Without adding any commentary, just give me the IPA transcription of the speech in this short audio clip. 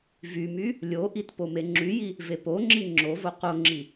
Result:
v y m y | lʲ o ʔ i t p o m e ŋ͡ǁ y j i | v e p o ŋ͡ǁ i ŋ͡ǁ o v o q o ŋ͡ǁ i

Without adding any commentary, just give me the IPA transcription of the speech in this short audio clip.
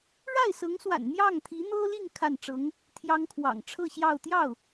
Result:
ɻ a˥˩ ɪ̯ s ɤ˧˥ ŋ s w a̰˨˩ n n̪ j ɑ˥˩ ŋ t̪ʰ i˧˥ n̪ ɤ˥ l i˥˧ ŋ kʰ a˥˩ n ʈ͡ʂ ɤ˧˥ ŋ | t̪ʰ j ɑ˥ ŋ kʰ w ɑ̰˨˩ ŋ ʈ͡ʂʰ ɤ˥˧ ɕ j ɑ˥˧ ʊ̯ t̪ j ɑ˥˩ ʊ̯

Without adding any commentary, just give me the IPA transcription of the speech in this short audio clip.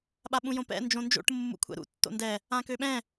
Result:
ɓ a ɓ ũ j õ p ɛ̰ n d͡ʒ õ n d͡ʒ o̰ ʈ mː ṵ kʷʰ ɛ̰ ɾ ṵ tː o̰ n d ɛ | ã k ø ɓ ɛ̃

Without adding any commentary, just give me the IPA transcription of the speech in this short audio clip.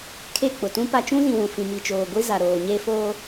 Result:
kʰ e˦˨ k͡p ʊ˨ t ũ˦ p a˦ t͡ʃ ũ˦ z ĩ˨ w ũ˨ f ĩ˨ m i˨ t͡ʃ oː˨ ɡʷ i˦ z a˨ ɾ oː˨ ɲ e˦ f oː˦

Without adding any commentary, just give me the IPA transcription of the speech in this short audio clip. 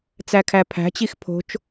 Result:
t͡s æ kʰ æ pʰ æ̤ t͡ɕ i x pʰ o̤ t͡ʃ

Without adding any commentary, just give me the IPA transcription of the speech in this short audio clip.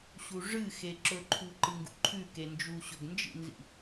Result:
ɕ u ʐ ɨ x e ǁ ɵ ǃʰ u ǃ ɨ ŋ ɡ ṵ ǃʰ ʉ k e n d͡ʒ u ɕ ɵ ɡ n d͡ʒ ḭ n z ḭ

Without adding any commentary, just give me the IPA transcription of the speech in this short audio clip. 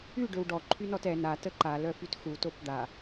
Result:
y ɖ ø w ɖ ɔ ǃʰ y n ɔ t ɛ n a t ə ǃ a l œ f y t x u t o p d̪ a

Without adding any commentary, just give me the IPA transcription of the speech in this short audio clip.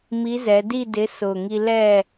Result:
m i˨˥ z ɛ˩˧ d i˥˨ d ɪ˨˥ s ʊː˨˩ ŋ i˧ l ɛ˥˨

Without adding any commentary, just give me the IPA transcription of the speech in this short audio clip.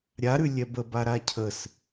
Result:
ɾʲ a ɾ ʉ lʲ ɛ b ə b a ɾ a cʰ ə s

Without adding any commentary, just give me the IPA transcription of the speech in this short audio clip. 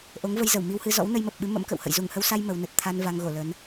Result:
ʔ o˨˦ ŋ v ə˧ j z ə˧˩ w m i˧ w h ɨ˧ z ɔ̰˧˥ w n ə˧ j m ə˨˩ p̚ ɓ ɨ˨˦ m ə̰˧˥ m k ə̰˧˨ w h ə̰˧˨ j z u˧˩ ŋ h ə˧ w s a˧ j m ə˨˦ w n ə˨˩ t̚ t̪ʰ a˧ n v a˧ ŋ ɣ o˧˩ l ə˨˦ n

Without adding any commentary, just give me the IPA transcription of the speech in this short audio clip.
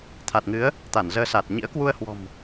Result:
t̪ʰ a˨˩ t̚ ŋ ɨ˨˦ ə̯ | t̪ a˧˩ n z əː˧ s a˨˩ t̚ ɲ ḭ˧˥ ə̯ k w u˧ ə̯ h w ɔ̤˨˩ m

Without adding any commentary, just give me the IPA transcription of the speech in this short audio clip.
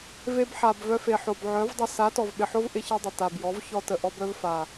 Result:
v e˧ b ħ a˨ b v œ˧ f e˨ ħ o˨ b ʕ œ˨˦ v dˤ ɪ˧ s a˨˦ t ɔ˨ v ɓ ɪ˨ ħ o˦ v ʔ ɪ˦ ç e˦ dˤ ɪ˨ t a˨ b j ɔ˨˦ v ç ɔ˧ t ə˨ ʔ ɔ˧ b œ˧ v f a˨

